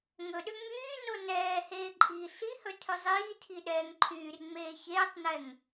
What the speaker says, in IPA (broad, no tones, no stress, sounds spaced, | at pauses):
ŋ ɵ ɗ ʏ ŋ͡m yː n o n ɛː h eː ǃʼ iː ɬ i h ɵ tʰ ɵ zˤ iː tʰ i ɗ ɛː ŋ ǃʰ yː r ŋ͡m eː ç eː tˤ n ɛ ŋ